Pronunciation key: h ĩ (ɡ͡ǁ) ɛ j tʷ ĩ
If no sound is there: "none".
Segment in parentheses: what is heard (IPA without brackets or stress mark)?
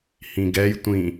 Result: ɡ